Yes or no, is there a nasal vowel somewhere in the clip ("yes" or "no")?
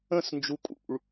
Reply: yes